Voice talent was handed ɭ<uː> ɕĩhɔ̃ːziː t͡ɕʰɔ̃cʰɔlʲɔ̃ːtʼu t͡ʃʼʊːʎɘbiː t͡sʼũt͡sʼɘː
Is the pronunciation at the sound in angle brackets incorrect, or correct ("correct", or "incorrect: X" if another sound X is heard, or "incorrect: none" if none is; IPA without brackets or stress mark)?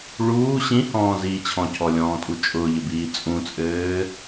correct